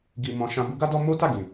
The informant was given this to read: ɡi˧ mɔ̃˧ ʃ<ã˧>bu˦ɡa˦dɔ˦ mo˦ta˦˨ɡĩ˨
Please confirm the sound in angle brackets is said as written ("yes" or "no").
yes